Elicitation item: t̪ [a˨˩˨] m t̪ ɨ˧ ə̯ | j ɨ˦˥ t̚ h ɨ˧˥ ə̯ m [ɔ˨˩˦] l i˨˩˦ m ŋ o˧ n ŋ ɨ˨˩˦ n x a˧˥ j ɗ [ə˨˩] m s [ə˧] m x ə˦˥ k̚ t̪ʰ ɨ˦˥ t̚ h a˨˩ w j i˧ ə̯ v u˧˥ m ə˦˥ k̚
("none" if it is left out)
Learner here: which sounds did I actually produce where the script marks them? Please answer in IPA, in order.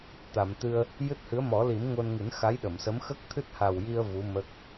a˨˩˨, ɔ˨˩˦, ə˨˩˨, ə˧˥

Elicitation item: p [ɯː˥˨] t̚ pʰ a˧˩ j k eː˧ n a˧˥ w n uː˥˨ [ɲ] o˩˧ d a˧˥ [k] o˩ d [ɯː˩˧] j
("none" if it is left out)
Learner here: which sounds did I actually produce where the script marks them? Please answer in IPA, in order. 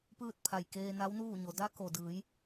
ɯː˥˨, ɲ, k, ɯː˩˧

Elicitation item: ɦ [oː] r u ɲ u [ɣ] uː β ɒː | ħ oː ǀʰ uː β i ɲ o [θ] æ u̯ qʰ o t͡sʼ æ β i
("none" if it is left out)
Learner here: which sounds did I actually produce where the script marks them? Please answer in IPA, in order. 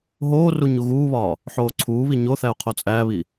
oː, ɣ, θ

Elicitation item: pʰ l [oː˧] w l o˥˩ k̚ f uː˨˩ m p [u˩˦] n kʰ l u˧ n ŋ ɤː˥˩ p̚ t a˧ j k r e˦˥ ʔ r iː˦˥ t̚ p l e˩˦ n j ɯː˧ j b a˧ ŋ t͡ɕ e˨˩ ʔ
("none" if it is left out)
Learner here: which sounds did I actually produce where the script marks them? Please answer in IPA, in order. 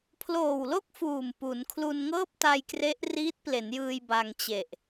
oː˨˩, u˩˦

